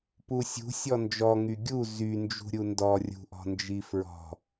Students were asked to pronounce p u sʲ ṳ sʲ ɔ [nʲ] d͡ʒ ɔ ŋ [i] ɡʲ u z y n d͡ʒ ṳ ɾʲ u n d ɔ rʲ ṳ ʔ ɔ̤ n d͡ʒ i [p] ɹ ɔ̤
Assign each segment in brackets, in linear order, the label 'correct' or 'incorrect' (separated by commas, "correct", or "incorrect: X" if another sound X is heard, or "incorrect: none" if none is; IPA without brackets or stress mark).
incorrect: n, incorrect: y, incorrect: f